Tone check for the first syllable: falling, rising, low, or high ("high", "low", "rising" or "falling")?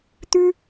high